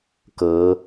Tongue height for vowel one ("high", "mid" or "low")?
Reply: mid